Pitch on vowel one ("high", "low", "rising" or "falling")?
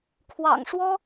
low